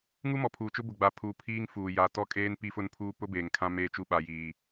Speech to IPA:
ŋu˦mɔ˨pʰuː˨t͡ʃʊ˦ bʊ˨ɡ͡ba˨pʰuː˨ pʰiː˦ŋ fuː˨ ja˨ tɔ˦kʼeː˦n pi˦ fʊ˦npʰuː˦ pʊ˦beː˨ŋ kʰã˦meː˦t͡ʃu˦ ɓa˦jiː˦

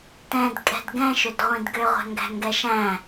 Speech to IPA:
tɛ̃dkʼɛ̤d ɡɛ̃ʃʏdʁʷĩd ɡøʁʷæ̤ŋɡæ̤ŋɡɛ ʃæ̃

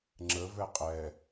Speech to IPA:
ŋ͡ǁəvɛ qʼɛ

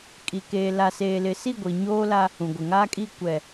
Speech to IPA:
kʼi˨keː˨ la˨seː˨lɪ˨si˦˨ ɡʷi˨ɲoː˦la˦ | ũ˨ɡʷɪ˨ŋaː˦kʼi˦˨ kʷɛ˨

